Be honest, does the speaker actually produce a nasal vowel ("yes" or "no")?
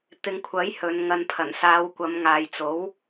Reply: no